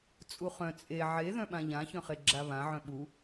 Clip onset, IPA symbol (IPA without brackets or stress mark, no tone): t͡sʼ